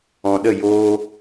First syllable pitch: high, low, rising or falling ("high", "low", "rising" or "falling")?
low